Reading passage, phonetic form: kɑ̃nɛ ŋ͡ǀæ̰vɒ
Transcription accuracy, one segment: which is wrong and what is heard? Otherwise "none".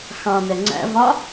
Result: k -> x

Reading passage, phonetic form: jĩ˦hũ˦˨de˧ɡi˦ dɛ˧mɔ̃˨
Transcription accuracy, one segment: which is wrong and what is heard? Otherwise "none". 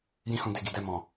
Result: i˦ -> i˨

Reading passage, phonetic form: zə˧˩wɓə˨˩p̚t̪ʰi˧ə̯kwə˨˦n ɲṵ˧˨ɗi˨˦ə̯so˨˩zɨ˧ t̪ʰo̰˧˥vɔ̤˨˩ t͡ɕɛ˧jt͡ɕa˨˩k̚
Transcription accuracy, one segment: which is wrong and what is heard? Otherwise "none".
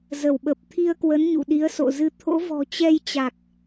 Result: o˨˩ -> o̰˧˨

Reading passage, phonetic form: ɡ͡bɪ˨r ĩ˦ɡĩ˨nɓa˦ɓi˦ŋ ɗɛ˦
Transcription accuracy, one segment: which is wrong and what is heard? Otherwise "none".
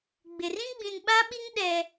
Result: ɡ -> ɡ͡b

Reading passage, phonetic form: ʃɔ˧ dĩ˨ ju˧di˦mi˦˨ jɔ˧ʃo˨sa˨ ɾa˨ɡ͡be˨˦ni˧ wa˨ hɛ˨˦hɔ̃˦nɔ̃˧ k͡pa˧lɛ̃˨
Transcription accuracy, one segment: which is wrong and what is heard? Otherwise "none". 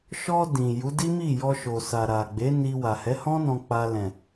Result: u˧ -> u˨˦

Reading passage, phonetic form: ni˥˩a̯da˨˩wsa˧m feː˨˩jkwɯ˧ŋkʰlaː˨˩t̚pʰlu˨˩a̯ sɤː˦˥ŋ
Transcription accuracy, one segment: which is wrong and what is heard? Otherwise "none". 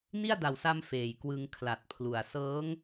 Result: aː˨˩ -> a˨˩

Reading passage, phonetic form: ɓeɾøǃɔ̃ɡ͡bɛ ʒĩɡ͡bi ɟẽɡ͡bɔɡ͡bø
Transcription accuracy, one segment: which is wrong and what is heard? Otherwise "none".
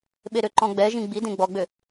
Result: ɟ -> d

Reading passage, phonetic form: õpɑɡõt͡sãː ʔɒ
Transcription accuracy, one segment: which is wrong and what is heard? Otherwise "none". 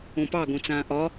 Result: none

